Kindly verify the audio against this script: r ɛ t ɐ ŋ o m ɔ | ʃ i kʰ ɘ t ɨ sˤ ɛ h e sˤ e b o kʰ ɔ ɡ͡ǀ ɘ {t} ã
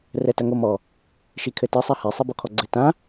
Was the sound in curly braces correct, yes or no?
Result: yes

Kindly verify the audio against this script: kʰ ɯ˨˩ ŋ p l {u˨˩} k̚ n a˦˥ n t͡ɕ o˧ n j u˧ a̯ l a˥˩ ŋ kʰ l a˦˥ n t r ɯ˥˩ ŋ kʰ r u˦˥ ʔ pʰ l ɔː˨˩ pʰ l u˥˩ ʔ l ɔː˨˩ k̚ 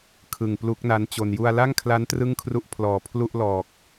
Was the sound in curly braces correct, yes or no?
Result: no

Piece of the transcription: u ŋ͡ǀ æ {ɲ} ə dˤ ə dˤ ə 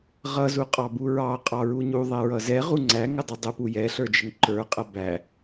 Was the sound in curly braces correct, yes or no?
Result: no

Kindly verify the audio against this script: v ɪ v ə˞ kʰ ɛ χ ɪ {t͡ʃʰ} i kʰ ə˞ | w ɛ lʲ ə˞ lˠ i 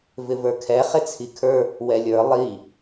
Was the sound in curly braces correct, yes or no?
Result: no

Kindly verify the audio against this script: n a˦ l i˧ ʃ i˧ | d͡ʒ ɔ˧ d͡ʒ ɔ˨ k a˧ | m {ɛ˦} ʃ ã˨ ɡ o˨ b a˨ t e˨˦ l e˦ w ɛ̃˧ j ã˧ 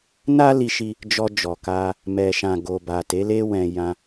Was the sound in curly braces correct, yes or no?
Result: no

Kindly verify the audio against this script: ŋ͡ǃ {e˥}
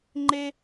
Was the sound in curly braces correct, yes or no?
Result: yes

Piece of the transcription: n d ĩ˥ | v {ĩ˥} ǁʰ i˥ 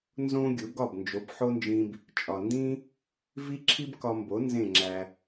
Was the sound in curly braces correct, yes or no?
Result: no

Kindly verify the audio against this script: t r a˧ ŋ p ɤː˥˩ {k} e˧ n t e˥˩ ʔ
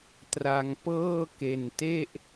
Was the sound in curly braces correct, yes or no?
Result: yes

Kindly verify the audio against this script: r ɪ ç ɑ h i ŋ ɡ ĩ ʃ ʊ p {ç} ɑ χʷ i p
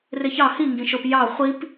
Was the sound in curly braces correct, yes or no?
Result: no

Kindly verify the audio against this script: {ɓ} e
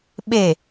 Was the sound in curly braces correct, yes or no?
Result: yes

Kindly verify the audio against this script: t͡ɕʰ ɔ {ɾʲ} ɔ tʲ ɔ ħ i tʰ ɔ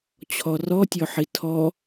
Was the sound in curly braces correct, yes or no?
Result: no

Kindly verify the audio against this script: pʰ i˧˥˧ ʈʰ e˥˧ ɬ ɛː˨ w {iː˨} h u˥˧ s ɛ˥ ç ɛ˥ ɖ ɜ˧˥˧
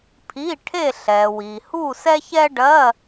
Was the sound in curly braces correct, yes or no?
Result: yes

